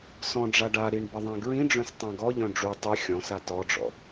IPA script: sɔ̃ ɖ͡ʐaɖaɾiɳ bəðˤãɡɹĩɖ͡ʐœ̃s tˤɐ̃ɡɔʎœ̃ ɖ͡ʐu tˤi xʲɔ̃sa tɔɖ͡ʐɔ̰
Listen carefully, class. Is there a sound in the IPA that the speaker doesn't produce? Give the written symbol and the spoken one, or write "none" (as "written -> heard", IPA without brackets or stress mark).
ɐ̃ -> ã